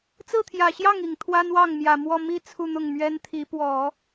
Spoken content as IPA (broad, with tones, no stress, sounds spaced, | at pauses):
t͡s ɹ̩˥˩ t̪ʰ j ä˨˩ ɕ j ɑ˥˩ ŋ i˨˩ ŋ t̪ʰ w a˥ n w ɑ˥˩ ŋ m j ä˨˩ m w ɔ˥˧ m i˥˧ t͡sʰ u˥˧ n̪ ʊ˥˩ ŋ m ɥ ɛ˥ n t̪ʰ i˧˥ p w ɔ˨˩˦